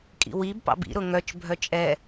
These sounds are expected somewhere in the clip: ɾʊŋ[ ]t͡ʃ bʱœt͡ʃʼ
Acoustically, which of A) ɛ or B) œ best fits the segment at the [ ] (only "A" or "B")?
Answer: B